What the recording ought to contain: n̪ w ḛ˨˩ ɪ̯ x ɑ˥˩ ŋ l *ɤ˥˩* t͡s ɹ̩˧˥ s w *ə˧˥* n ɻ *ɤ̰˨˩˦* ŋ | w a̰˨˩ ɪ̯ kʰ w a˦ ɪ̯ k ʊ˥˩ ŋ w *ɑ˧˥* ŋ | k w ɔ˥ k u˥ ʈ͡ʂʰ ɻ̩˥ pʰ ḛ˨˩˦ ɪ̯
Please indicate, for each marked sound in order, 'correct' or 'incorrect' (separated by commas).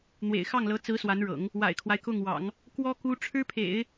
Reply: incorrect, incorrect, correct, incorrect